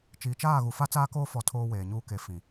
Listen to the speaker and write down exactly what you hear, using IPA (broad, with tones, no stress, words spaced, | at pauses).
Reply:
t͡ʃiː˨t͡ʃaː˦˨ɣu˨ fa˦t͡saː˦koː˦ fɔ˦tʰoː˦weː˨ɲuː˦ ke˨ fĩ˨